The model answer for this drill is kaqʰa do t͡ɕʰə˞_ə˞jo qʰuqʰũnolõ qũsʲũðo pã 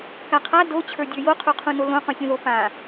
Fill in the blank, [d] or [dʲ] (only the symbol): dʲ